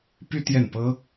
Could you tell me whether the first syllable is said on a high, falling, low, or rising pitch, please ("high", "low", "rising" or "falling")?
high